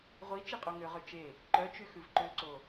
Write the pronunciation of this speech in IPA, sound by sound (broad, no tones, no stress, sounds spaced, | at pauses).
ʁʷ i t͡ʃ i qʼ o ŋ ø ʁ ø t͡ʃ e | ǃ œ t͡ʃ y x ʉ v ǃ ø ǀ o